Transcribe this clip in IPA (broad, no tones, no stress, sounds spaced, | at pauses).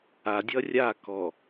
a dʲ ʌ rʲ a k ɔ